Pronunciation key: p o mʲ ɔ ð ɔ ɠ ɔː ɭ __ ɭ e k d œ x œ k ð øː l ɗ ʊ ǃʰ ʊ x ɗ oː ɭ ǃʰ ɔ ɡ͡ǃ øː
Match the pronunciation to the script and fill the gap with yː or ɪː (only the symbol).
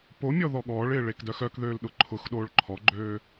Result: ɪː